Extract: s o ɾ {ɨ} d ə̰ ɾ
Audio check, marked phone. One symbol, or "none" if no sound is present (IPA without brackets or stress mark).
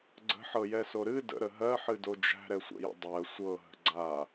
ɨ